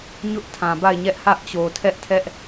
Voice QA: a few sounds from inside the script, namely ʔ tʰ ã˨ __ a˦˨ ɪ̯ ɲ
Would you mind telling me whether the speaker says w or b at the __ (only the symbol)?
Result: b